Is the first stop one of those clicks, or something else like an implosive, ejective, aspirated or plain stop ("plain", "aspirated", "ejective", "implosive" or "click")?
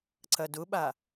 click